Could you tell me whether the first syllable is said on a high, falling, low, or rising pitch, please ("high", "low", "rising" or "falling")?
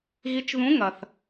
rising